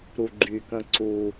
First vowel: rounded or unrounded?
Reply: rounded